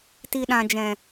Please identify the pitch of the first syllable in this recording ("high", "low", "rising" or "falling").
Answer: low